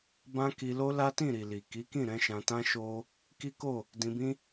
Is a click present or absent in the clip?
absent